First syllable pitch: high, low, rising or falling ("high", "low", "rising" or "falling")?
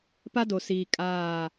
high